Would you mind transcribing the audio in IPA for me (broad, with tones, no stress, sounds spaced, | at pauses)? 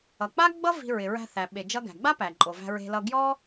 ʌ˩ k͡p a˥ ɡ͡b ʌ˥ v i̤˧ ɹ ɪ˩ ɹ æ̤˧ θ æ˩ ɓ e˩ d͡ʒ ʌ˧ ɡ æ̤˩ ɡ͡b a˥ p æ˩ ǃʼ o˩ v æ̤˧ ɹ e̤˧ l ʌ˧ ɡ j ɔ˥